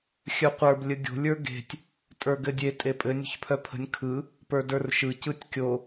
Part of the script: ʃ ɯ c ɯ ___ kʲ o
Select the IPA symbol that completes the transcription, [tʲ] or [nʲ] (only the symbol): tʲ